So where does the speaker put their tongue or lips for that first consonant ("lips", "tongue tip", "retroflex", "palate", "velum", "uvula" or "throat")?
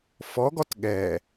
lips